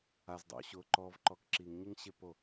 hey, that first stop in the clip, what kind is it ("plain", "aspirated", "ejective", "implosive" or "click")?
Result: plain